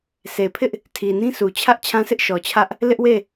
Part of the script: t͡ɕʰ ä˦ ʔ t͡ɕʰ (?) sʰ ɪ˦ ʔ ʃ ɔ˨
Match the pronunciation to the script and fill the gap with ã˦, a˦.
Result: ã˦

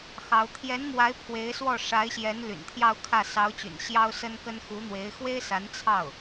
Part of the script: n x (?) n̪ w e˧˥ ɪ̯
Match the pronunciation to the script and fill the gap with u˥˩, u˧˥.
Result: u˧˥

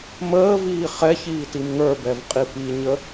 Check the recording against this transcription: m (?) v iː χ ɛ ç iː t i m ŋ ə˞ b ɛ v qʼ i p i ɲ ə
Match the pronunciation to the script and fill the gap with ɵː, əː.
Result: əː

